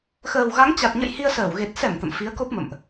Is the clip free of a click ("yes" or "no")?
yes